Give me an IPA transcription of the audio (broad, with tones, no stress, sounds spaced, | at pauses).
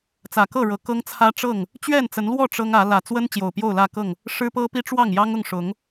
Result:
t͡s ä˨˩ k ɤ˥˨ ɻ ɤ˨˩ k ɤ˦ ŋ t͡sʰ ä˦ ʈ͡ʂ ɤ˥˨ ŋ | t͡ɕ ɥ ɛ˥˨ n t͡s ə˨˦ n l w ɔ˥˨ ʈ͡ʂ ɤ˦ ŋ ä˨˦ l ä˨˩ t͡s w ə˦ n t͡ɕ j o˨˩ ʊ̯ p j o˥˨ ʊ̯ l ä˥˨ k ɤ˥˨ ŋ | ʂ ɻ̩˦ p ɤ˦ p i˦ ʈ͡ʂ w ɑ˥˨ ŋ j ɑ˦ ŋ ʊ˥˨ ŋ ʂ ʊ˨˦ ŋ